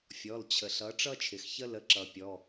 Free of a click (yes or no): no